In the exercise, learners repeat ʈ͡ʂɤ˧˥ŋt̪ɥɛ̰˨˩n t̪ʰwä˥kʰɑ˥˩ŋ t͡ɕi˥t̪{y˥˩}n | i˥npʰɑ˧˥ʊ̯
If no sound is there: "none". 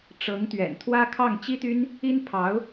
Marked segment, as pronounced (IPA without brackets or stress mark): y˥